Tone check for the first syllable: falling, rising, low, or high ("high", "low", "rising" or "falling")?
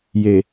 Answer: low